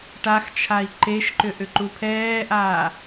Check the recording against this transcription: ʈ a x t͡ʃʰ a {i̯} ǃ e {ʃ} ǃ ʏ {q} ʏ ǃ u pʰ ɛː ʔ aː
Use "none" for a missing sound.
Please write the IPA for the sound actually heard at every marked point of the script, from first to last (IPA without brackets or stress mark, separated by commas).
i̯, ʃ, ʔ